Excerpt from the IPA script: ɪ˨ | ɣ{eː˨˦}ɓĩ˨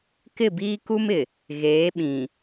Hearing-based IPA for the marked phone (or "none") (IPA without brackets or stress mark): eː˨˦